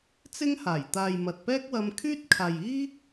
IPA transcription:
t͡sɪ˥ŋhaː˨˩j t̪aː˨jmɐ˨t̚pɛː˥k̚wɐ˧m kʰyː˥t̚kʰaː˨jiː˥

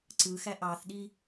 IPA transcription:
ǀɯxæ ʔɑθɗi

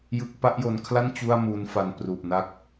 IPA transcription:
jɯ˥˩k̚ pa˥˩ʔjo˧nkʰla˥˩n t͡ɕu˥˩a̯muː˦˥nfa˧n pru˨˩ʔ na˦˥k̚

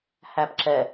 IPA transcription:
hæpǁɛ

